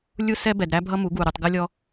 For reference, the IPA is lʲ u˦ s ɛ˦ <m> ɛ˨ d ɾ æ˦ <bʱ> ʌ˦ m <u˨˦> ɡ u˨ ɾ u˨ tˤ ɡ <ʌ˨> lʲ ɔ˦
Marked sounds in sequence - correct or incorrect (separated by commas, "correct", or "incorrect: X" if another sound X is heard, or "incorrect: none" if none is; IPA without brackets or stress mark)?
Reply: incorrect: b, correct, correct, incorrect: ʌ˦